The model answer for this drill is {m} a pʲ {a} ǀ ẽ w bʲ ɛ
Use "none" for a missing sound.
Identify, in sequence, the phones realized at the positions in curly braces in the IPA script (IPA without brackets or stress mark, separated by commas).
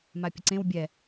m, ə